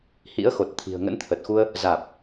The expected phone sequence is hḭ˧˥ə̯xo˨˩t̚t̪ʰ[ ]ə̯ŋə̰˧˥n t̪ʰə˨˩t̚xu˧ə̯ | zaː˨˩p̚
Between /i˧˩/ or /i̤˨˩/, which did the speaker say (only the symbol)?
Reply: i̤˨˩